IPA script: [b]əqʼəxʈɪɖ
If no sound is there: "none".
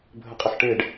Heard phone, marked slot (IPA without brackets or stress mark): bʱ